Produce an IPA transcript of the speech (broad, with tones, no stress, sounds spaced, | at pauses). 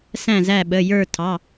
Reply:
s æ̃˦˨ z æ˦˨ ɓ ə˩˧˩ j ə˞˦˨ tʰ ɑ˩˧˩